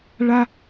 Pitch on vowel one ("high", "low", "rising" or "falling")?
high